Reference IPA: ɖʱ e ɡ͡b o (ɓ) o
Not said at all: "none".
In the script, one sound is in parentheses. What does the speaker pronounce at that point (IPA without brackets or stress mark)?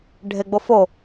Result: f